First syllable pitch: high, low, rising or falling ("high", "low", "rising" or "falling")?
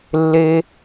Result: high